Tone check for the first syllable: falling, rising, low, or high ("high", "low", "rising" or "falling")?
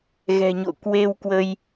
low